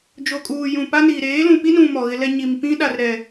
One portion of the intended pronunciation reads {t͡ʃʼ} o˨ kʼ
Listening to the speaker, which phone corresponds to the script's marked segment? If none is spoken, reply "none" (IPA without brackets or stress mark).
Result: d͡ʒ